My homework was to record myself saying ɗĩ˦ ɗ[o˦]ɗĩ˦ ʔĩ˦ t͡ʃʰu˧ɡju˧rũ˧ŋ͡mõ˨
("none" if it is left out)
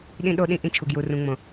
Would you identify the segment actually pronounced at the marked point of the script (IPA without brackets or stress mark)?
o˦